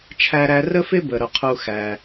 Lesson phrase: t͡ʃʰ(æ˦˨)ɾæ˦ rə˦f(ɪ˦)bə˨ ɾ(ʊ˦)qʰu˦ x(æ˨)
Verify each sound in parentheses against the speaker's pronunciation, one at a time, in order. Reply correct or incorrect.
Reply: incorrect: æ˦, correct, incorrect: ʊ˧, incorrect: æ˧

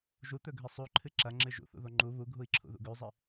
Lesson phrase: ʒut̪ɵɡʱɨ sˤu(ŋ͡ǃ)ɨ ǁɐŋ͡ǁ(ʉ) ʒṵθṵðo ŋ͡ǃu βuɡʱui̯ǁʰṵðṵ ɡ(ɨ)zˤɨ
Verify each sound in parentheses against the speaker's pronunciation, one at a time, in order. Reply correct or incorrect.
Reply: incorrect: ǃʰ, incorrect: ɨ, incorrect: ʉ

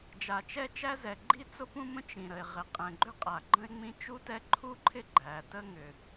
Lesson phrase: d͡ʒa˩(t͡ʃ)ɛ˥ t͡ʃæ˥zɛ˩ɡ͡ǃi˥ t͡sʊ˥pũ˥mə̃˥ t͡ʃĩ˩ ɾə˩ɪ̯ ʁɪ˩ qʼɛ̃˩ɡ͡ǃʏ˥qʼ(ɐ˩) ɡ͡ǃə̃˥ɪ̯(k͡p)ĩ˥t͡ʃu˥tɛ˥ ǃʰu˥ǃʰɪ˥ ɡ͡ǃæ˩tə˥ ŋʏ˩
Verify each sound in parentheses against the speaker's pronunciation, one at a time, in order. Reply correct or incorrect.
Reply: correct, incorrect: a˩, incorrect: ŋ͡m

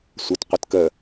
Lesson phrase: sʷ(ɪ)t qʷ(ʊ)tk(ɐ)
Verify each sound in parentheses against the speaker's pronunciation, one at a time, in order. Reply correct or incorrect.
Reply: incorrect: ə, incorrect: ɯ, incorrect: ə

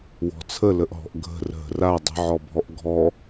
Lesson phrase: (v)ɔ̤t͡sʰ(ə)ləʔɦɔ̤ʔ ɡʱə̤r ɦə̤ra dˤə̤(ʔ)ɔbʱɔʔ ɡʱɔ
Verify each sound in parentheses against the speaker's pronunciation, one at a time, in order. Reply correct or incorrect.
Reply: incorrect: w, correct, incorrect: ʕ

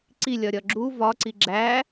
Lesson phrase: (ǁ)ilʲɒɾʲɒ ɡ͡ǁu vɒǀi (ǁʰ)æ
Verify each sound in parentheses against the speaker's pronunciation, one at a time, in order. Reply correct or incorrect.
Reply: incorrect: ǀ, incorrect: ɡ͡ǁ

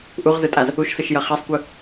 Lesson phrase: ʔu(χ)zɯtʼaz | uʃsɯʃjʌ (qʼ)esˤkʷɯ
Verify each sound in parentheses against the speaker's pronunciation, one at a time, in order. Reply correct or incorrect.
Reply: incorrect: ʁ, incorrect: χ

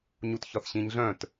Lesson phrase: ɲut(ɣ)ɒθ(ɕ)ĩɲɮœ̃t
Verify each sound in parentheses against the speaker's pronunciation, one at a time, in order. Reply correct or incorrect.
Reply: incorrect: ç, correct

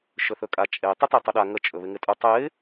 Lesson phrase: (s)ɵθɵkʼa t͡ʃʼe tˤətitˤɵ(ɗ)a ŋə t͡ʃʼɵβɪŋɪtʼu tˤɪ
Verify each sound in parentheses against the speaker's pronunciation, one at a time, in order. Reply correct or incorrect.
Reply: incorrect: ʃ, correct

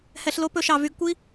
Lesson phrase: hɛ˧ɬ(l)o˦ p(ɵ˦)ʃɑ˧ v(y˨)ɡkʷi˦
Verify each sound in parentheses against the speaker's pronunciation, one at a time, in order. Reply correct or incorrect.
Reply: correct, correct, incorrect: y˧

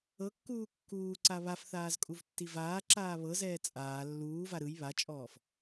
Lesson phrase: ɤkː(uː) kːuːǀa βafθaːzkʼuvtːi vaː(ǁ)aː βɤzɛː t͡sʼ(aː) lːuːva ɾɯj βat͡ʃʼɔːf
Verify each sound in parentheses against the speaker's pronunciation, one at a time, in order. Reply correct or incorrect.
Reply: correct, correct, correct

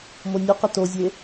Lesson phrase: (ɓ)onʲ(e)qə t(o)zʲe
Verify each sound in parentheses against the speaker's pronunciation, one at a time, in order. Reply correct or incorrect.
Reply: incorrect: m, correct, correct

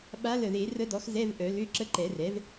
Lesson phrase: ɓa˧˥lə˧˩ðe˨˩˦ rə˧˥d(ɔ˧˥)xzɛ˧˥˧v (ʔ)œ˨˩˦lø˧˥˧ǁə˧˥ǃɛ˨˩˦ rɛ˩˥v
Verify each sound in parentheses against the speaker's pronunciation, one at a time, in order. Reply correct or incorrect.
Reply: incorrect: ɔ˩˥, correct

